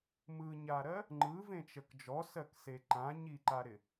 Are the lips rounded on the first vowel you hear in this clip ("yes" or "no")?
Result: no